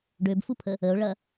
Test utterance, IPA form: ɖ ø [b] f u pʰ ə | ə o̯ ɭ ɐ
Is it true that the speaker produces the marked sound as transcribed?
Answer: yes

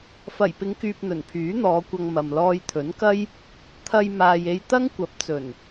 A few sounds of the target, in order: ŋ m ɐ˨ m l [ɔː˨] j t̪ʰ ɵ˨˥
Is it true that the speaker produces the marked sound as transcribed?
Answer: no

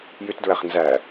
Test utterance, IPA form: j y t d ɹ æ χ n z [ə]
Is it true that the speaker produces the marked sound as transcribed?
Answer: no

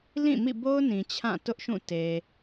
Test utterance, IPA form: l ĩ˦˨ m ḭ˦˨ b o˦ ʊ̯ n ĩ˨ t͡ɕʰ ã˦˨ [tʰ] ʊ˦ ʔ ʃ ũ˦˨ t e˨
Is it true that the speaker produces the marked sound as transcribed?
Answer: no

